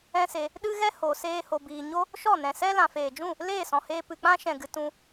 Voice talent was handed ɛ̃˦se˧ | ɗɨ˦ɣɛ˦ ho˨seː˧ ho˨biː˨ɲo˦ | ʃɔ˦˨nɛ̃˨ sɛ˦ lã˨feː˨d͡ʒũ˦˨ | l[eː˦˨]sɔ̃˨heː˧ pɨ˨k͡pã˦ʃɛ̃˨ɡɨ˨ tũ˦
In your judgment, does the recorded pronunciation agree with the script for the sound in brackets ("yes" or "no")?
yes